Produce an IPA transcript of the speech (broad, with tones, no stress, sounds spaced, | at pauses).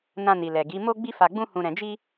n ã˧ n i˨ l ɛ˨ ɡ i˨˦ m o˦ ɡ͡b i˦ f a˧ ɡ͡b ũ˦ h ũ˧ ɾ ɛ̃˧ d͡ʒ i˦